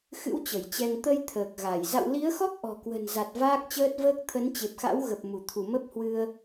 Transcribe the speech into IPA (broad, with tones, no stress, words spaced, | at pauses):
xɨ̰˧˥w t͡ɕə˧˩jt͡ɕɛ˧ŋ t̪ə˧j t̪ʰəː˨˩k̚ɣa˧˩j za̰˧˨wli˨˦ə̯xɔ˦˥k̚ ʔɔ̤˨˩kwə̤˨˩nza˨˩t̚ vaː˦˥k̚t͡ɕəː˦˥t̚vəː˦˥k̚ t̪ʰə˨˦nt͡ɕe˨˩p̚xa̰˧˥wɣə˨˩p̚ mu˧˩t̪ʰu˧˩ mə˦˥p̚hwɨ˧ə̯